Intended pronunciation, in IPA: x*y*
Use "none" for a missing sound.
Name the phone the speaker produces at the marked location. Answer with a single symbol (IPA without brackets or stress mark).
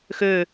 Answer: ø